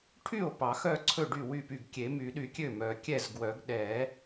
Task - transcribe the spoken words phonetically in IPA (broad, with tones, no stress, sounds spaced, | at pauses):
ʈʰ y˥˩ o̯ p ɑ˨˩˦ x œ˥˩ ǀʰ ɵ˥˩ ɖ y˥˩ w y˥˩ p y˥˩ ɡ kʲ e˨˩˦ m y˨˩˦ ɗ y˨˩˦ kʲ ø˥˩ m œ˨˩˦ kʲ ɛ˥˩ z ɡ w œ˨˩˦ ɡ ɗ ɛ˨˩˦